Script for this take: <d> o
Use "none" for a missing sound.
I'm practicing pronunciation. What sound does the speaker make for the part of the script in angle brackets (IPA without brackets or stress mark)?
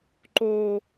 ǃ